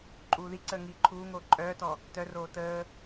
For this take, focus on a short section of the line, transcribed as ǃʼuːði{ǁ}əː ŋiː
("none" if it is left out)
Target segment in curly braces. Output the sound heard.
ǀ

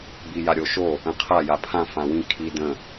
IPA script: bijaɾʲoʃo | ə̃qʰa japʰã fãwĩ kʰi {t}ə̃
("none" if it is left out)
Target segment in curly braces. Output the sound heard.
d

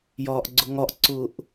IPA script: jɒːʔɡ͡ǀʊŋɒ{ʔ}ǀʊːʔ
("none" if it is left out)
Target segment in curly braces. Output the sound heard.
ʔ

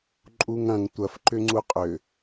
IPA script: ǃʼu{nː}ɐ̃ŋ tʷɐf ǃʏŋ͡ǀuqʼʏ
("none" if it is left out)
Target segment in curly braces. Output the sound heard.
ŋ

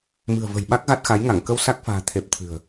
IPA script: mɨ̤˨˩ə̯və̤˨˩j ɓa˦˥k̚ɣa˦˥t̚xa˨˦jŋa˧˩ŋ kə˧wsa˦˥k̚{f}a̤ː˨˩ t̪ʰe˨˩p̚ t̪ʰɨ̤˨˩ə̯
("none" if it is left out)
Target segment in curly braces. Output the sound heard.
f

